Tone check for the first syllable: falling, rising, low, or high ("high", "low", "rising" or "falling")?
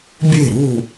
falling